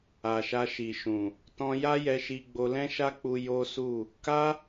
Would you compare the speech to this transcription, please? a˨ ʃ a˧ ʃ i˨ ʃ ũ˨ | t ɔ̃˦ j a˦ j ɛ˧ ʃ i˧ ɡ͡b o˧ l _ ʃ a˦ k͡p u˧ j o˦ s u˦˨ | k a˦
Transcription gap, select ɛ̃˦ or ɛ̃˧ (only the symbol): ɛ̃˦